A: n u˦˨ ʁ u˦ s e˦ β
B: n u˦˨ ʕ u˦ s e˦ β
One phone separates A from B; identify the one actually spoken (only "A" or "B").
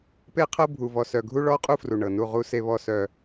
A